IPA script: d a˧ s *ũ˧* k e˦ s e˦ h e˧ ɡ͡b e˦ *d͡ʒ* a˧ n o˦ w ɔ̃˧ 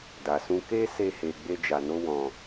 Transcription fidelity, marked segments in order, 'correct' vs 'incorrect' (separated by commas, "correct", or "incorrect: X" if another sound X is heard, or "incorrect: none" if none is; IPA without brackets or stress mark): incorrect: ũ˦, correct